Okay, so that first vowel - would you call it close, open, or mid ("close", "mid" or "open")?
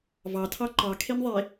open